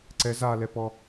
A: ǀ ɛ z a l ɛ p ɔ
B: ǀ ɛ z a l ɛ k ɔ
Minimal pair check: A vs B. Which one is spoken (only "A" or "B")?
A